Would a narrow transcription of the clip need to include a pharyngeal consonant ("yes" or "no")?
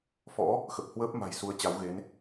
no